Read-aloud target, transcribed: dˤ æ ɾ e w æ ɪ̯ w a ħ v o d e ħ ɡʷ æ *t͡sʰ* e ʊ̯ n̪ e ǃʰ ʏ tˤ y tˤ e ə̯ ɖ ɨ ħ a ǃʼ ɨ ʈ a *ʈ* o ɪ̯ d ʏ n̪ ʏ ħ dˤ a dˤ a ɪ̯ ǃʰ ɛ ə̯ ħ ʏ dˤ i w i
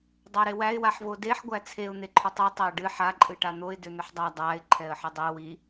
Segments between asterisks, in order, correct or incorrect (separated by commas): correct, incorrect